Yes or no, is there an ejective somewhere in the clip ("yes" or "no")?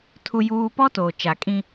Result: yes